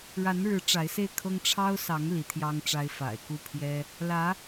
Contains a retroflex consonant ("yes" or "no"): yes